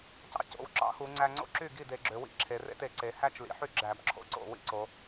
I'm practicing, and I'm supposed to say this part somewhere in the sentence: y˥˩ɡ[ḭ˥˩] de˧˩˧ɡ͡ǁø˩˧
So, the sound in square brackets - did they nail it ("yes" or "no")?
no